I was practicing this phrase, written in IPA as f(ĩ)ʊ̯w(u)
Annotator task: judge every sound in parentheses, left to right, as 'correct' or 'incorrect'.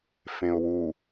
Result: incorrect: ẽ, correct

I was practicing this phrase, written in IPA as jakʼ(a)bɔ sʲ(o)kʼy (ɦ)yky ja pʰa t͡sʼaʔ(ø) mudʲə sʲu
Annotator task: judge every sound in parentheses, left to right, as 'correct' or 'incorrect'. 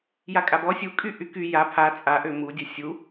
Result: correct, incorrect: u, incorrect: ʔ, correct

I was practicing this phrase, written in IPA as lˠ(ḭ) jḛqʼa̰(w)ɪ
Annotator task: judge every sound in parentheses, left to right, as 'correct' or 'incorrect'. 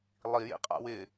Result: incorrect: i, correct

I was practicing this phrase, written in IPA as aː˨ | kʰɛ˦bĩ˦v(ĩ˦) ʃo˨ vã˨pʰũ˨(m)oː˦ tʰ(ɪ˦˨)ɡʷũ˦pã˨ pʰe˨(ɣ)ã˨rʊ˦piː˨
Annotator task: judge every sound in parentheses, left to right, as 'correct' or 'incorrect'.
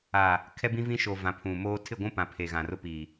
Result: correct, correct, correct, correct

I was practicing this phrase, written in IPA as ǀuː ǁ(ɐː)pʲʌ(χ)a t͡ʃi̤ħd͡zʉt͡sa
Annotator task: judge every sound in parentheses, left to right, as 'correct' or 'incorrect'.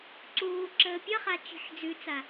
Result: incorrect: əː, correct

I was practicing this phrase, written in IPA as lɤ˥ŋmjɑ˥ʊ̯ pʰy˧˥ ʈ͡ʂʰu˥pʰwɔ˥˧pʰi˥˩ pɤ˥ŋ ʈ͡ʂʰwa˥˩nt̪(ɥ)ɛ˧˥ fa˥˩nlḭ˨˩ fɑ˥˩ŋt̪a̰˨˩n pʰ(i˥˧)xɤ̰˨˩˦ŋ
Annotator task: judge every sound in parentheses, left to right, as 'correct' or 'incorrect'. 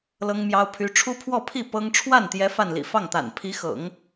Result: incorrect: j, incorrect: i˧˥

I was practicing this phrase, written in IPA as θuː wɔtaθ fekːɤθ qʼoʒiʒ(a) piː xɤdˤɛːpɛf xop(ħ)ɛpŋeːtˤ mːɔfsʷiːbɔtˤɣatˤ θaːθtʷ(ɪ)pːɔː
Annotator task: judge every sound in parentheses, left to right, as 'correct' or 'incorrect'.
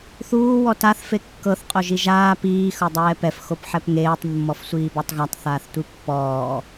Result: incorrect: aː, correct, incorrect: i

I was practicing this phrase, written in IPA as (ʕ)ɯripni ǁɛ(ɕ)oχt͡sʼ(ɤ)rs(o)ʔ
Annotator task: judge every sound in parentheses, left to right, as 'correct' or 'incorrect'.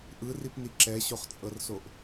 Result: incorrect: ʔ, correct, correct, correct

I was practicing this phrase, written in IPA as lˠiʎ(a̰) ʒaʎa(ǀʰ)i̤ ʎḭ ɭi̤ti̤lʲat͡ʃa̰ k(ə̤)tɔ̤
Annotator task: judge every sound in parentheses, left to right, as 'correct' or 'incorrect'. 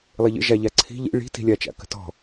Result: incorrect: ə̰, correct, correct

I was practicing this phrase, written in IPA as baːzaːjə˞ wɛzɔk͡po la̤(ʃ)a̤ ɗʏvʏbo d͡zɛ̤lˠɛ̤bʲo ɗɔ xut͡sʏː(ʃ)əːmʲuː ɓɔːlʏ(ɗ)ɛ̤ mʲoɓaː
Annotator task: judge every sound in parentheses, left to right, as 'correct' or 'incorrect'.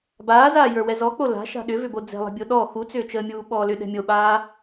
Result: correct, incorrect: t͡ʃ, correct

